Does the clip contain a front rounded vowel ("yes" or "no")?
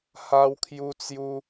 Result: no